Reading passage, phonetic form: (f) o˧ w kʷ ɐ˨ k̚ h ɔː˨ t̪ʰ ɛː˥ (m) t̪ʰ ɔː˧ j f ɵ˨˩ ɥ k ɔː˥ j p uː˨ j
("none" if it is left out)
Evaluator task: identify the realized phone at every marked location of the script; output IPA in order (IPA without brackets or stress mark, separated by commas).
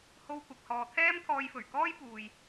h, m